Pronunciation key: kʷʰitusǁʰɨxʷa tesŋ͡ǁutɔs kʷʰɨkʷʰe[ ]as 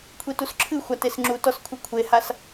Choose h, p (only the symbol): h